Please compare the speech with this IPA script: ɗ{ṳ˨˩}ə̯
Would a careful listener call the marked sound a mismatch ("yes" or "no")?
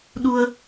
yes